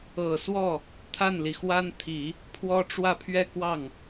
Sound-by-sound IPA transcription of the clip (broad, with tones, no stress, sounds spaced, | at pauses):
ɤ˨˩ s w ɔ˥˩ | t̪ʰ a˥˩ n l i˩ x w a˥ n t̪ʰ i˨˩˦ | pʰ w ɔ˥ ʈ͡ʂ w ä˥˧ pʰ ɥ ɛ˥˧ k w ɑ˥˩ ŋ